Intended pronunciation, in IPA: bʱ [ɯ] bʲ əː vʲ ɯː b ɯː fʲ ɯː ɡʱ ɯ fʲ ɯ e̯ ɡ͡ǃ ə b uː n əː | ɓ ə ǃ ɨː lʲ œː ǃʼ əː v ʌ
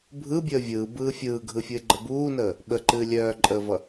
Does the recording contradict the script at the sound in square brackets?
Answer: no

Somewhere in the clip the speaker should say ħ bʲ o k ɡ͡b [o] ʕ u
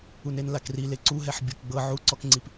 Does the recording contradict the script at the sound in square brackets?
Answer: yes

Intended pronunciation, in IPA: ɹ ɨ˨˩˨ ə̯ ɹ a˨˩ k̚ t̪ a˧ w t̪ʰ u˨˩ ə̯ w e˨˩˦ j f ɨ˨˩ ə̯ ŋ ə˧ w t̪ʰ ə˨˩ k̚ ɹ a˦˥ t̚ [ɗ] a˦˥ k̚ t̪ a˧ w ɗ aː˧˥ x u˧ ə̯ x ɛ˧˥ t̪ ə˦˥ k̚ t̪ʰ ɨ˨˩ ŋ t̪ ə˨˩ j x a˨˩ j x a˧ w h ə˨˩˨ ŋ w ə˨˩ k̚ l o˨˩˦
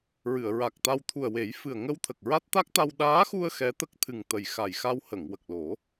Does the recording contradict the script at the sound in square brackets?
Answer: yes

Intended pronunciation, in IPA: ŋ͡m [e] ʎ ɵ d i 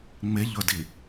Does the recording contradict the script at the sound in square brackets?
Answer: no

